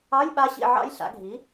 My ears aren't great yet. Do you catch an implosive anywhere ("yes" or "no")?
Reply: yes